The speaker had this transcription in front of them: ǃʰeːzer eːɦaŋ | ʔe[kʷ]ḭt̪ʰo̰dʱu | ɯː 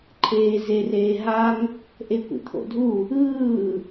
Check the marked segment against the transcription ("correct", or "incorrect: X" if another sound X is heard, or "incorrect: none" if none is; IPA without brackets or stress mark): correct